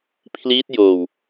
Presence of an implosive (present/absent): absent